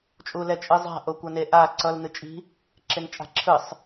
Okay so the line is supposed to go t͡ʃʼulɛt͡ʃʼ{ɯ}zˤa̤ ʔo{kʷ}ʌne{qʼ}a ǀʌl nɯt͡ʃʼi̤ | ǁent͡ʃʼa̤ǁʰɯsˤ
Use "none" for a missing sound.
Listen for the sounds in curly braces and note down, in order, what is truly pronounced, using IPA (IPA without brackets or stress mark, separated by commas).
ɯ, kʷ, ʔ